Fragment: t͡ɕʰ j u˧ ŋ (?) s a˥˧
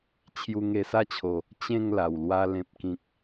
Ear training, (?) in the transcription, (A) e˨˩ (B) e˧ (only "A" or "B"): B